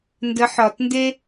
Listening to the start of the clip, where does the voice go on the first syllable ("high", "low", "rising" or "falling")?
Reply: rising